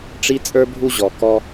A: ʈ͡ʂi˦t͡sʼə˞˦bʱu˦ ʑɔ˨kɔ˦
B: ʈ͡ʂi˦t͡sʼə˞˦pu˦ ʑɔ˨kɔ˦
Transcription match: A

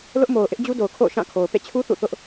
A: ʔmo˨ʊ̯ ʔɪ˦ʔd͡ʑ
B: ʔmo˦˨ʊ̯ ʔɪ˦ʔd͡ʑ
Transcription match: A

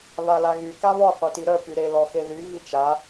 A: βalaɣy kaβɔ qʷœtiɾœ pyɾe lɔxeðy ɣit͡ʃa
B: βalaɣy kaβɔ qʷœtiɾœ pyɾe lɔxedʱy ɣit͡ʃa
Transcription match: A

